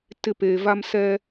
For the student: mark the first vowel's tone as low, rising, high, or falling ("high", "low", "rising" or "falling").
falling